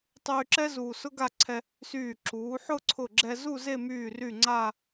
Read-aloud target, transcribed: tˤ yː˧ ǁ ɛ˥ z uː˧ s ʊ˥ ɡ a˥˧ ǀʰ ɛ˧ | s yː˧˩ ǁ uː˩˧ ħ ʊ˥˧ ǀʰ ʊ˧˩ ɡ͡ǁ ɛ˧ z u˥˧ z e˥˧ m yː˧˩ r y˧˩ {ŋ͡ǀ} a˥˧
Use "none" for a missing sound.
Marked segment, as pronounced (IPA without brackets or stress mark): ŋ͡ǀ